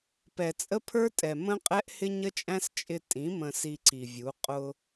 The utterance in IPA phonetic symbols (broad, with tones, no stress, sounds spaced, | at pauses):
p ɛ˨ t͡sʼ ə˦ pʰ ə˞˦ tʼ ɛ˨ m ə̃˦ qʼ ɛ˦ ʔ h ɪ˦ ɲ ə˦ t͡ʃʼ æ̃˦ s t͡ʃʼ ɪ˧ tʼ ĩ˨˦ m ə̃˧ s i˧ ǀ i˨ vʲ u˨˦ qʼ ʊ˧